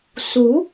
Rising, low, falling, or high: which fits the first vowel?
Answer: rising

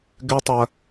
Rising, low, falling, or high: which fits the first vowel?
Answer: high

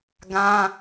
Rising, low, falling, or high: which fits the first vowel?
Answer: high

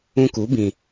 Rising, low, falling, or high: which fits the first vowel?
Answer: high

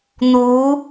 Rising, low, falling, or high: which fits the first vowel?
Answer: rising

